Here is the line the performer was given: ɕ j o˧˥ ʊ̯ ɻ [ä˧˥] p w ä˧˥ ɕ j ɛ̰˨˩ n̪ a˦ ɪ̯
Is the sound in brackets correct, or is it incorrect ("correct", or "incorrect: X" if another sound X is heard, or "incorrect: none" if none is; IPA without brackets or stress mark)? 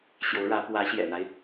correct